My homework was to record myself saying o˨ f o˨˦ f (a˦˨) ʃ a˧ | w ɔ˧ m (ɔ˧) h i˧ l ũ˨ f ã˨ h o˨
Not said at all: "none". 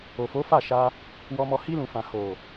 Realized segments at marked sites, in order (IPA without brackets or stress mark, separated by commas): a˦˨, ɔ˧